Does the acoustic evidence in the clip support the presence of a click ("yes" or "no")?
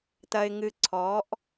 yes